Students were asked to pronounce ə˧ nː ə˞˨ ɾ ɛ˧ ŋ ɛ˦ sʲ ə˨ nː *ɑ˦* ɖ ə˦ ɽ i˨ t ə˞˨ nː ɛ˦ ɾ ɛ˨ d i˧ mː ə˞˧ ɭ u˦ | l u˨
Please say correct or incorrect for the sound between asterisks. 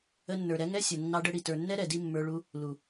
correct